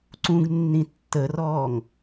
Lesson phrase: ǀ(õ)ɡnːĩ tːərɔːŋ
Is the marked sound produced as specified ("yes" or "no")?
no